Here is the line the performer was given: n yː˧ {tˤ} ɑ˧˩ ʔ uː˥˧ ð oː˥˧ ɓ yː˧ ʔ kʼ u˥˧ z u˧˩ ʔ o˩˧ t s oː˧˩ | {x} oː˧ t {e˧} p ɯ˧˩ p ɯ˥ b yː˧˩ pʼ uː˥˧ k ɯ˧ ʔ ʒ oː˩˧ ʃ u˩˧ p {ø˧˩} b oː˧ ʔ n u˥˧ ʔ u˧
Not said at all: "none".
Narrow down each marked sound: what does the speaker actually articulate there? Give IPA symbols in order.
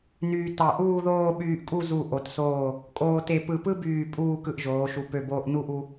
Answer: t, kʼ, e˧, ø˧˩

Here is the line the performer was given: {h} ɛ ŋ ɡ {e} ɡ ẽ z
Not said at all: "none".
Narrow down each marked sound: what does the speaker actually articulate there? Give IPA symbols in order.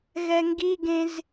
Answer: ɣ, i

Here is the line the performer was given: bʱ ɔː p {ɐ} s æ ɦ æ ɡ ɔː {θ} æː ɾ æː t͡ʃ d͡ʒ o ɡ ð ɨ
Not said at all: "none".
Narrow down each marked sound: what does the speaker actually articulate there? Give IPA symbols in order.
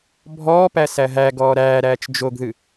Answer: æ, ɾ

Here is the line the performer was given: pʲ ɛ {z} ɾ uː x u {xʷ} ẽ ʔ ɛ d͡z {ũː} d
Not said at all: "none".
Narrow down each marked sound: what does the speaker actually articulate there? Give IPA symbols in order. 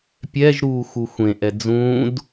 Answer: ʒ, xʷ, ũː

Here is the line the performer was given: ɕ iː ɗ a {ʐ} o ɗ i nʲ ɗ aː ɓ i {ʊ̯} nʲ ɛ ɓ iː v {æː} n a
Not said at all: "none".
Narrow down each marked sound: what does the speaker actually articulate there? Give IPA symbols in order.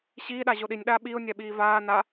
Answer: ʑ, ʊ̯, aː

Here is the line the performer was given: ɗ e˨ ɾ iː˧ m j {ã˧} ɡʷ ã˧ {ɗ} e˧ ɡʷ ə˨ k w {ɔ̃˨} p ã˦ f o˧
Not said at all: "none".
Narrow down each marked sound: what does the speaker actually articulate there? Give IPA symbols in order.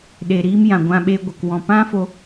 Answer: ã˨, ɓ, ɔ̃˨

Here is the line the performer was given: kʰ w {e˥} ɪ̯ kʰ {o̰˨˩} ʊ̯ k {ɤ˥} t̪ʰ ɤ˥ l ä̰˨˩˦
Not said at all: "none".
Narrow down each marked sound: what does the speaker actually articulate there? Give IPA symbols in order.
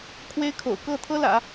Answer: e˥, o̰˨˩, ɤ˥˩

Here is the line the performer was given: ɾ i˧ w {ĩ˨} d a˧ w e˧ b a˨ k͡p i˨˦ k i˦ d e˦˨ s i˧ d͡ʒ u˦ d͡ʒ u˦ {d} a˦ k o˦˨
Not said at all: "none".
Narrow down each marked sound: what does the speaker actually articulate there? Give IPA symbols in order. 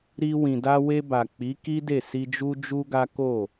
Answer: ĩ˨, ɡ

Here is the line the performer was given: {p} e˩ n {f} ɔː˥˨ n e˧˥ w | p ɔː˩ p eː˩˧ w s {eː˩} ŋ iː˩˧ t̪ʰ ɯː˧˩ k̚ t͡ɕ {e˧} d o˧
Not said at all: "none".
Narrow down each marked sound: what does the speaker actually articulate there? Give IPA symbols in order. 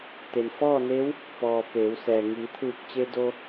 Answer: t̪, f, ɛː˩, e˧

